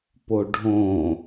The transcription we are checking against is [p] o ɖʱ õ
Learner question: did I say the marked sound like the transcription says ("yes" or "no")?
yes